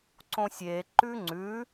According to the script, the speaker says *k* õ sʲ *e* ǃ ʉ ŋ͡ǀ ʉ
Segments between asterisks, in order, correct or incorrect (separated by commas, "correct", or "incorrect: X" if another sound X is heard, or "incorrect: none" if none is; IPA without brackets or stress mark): incorrect: ǀ, correct